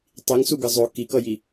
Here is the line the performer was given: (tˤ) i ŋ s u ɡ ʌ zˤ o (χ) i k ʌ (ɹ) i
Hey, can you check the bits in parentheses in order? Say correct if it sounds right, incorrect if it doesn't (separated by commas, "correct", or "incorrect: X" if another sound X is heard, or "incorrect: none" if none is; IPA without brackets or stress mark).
correct, incorrect: k, incorrect: j